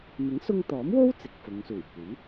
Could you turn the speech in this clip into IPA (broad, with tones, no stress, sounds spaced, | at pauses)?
m ɪ˨˥ ŋ s ʊ˧ ŋ t̪ ɔː˨˥ m w o˥ w t͡s ɪ˨ k̚ f ʊ˨˧ ŋ s uː˨˩ j kʷ iː˨˥